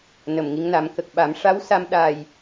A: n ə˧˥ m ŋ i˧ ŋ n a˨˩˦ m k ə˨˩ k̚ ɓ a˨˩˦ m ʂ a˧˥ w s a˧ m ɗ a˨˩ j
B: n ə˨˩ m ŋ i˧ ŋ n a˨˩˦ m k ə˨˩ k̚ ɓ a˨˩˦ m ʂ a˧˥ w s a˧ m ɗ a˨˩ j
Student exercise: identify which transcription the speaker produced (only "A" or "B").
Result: B